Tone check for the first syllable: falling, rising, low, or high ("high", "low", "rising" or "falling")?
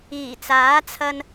low